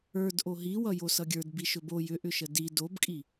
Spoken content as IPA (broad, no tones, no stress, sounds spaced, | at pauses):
ə˞ d ʔ o ɦ i w ʌ j o s ʌ ɡʲ ə˞ d b i ʃ ɵ b o j ʏ ʔ ʏ ʃ ə d i d o b kʼ i